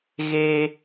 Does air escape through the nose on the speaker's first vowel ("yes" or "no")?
no